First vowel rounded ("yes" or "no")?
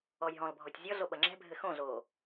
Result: yes